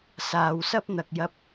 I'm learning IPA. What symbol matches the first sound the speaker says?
s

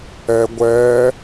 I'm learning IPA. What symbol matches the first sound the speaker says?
ɛ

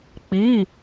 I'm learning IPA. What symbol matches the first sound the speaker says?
k͡p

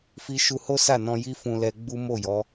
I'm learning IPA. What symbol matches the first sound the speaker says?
f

